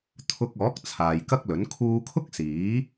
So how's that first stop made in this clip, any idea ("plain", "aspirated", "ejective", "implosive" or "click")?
aspirated